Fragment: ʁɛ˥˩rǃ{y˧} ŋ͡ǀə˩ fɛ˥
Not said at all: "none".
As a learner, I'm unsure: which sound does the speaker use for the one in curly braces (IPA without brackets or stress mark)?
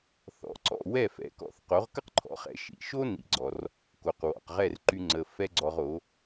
y˧